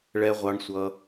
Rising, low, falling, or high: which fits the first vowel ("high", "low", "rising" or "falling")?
low